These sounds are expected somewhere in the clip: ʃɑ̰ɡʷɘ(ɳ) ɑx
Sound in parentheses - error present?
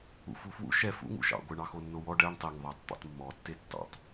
no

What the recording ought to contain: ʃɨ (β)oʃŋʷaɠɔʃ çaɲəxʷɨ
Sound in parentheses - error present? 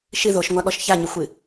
yes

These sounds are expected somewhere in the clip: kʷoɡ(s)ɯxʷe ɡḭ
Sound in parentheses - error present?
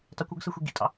no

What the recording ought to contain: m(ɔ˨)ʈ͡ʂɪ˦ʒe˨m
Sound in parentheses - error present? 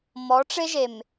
yes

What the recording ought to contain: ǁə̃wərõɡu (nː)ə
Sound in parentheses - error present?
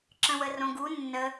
no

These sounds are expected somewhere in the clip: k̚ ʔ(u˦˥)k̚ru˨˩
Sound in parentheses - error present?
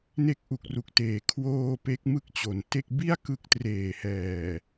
yes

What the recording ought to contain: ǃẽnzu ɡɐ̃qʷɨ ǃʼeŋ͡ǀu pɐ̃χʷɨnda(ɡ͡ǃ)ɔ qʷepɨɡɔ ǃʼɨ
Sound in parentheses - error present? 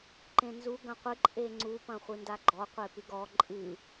no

